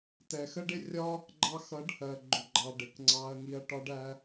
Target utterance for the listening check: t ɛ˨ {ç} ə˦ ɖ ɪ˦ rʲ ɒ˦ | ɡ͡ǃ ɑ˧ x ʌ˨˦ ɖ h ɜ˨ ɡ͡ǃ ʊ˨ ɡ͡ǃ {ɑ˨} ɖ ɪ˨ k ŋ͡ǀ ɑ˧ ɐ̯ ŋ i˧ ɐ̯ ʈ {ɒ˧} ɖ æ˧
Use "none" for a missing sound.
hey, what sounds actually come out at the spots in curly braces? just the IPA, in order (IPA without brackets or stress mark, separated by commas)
x, ɑ˨, ɒ˧